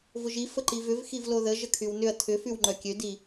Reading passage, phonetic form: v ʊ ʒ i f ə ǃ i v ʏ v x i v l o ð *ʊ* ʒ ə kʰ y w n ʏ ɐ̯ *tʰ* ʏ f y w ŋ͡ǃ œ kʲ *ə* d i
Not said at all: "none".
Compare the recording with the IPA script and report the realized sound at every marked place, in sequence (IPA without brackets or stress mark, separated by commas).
ə, tʰ, ø